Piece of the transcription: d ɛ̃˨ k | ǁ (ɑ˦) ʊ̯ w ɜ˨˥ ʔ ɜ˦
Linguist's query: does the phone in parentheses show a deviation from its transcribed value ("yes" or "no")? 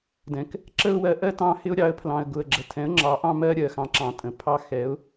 yes